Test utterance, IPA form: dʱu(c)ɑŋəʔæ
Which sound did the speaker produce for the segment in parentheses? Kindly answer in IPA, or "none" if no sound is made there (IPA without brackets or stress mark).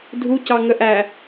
c